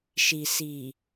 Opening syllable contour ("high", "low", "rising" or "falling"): low